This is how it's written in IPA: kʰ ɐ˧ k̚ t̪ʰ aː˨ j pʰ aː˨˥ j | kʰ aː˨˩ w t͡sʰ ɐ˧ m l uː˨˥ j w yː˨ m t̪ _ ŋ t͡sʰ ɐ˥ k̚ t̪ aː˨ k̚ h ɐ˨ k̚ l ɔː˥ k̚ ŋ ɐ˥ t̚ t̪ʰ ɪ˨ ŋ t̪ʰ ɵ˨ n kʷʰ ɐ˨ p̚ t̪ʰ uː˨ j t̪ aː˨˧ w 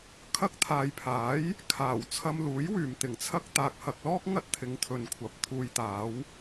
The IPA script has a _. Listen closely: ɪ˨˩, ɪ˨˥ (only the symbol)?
ɪ˨˩